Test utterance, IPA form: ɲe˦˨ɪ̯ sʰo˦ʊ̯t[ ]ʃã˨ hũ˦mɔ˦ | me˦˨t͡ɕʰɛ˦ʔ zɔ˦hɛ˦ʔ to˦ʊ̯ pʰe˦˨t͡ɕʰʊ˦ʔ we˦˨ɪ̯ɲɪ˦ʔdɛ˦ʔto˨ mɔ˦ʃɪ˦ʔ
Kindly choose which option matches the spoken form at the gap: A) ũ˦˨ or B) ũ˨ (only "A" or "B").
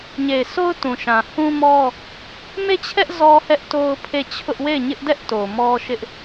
B